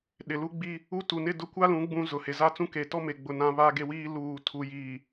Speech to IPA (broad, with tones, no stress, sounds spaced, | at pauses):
ɗ ɪ˨ l u˦ ɡ͡b i˦ | u˦ t u˨ n ɪ˦˨ d ʊ˦ kʷ a˦ l ũ˨˦ ɡ͡b ũ˦ z ʊ˨ h e˨ z a˦ t͡s ũ˦ k e˨ t ɔ˦ m e˨ ɡ͡b ʊ˨ n ã˦ β a˦ ɡ e˦ w iː˦ l uː˨ tʰ u˨ j iː˨